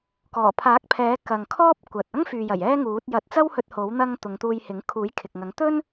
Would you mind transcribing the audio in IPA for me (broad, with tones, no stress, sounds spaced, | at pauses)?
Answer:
k ɔː˨˩ pʰ aː˨˥ k̚ pʰ ɛː˨˥ k ɐ˨ ŋ kʰ ɔː˥ p̚ kʷ ɐ˨ t̚ ɐ˥ ŋ f yː˨ j ɐ˨˩ j ɛː˥ ŋ uː˨˥ t̚ j ɐ˨˥ t̚ t͡s ɐ˥ w h ɵ˧ t̚ h o˨˥ w n̪ ɐ˧ ŋ t̪ ʊ˨˧ ŋ t̪ uː˧ j h ɪ˨˥ ŋ kʰ uː˨˥ j kʰ ɪ˨ k̚ ŋ ɐ˨˥ ŋ t̪ ɵ˥ n